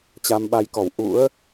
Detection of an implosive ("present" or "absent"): present